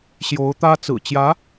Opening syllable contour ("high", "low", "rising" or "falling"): rising